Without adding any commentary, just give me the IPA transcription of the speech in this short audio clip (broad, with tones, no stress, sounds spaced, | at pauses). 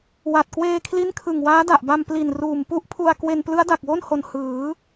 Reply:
w a˨˩ t̚ k w eː˧ kʰ l i˦˥ n kʰ ɯ˨˩ ŋ w aː˦˥ d a˨˩ ʔ b a˧ m p l i˨˩ n r uː˨˩ m p u˥˩ ʔ pʰ u˧ a̯ k w e˧ n p l ɯ˦˥ a̯ d a˨˩ k̚ w o˥˩ n h o˨˩ n h ɯː˩˦